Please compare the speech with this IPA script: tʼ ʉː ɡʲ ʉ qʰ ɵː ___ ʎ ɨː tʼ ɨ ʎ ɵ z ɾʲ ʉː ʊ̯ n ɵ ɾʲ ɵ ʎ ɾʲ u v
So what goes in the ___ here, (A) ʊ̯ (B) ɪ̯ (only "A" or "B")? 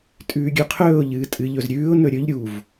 A